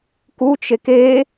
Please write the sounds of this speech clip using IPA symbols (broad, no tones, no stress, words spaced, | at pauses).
kut͡ʃek e